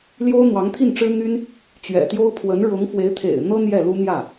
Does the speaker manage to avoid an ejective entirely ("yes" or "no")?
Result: yes